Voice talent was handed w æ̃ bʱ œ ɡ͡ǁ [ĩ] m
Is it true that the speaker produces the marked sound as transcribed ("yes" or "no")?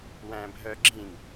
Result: yes